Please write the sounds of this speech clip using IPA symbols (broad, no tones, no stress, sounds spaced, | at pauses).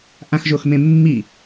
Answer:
ʔ ã x ʒ o x m ẽ mː i